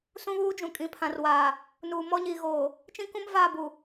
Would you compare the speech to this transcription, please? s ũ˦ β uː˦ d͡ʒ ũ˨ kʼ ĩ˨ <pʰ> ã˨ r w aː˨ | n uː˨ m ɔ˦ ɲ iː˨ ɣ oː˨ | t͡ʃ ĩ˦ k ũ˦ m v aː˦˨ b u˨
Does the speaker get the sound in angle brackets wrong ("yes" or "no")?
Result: no